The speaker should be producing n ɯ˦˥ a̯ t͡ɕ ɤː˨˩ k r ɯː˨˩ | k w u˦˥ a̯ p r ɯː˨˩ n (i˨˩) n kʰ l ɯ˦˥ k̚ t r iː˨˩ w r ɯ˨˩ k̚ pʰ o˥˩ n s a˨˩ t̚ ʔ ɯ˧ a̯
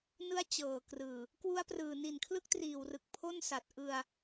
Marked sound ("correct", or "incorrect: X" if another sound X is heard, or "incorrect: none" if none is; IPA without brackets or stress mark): correct